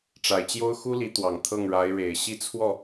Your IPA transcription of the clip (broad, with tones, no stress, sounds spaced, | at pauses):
ʈ͡ʂ a˨˩ ɪ̯ t͡ɕ j o˥ ʊ̯ x u˥ l i˧˥ t̪ w ɑ˨˩ ŋ t̪ʰ ɤ˥˩ ŋ ɻ a˧˥ ɪ̯ ɻ e˨˩ ɪ̯ ɕ i˥˧ t͡sʰ w ɔ˥˩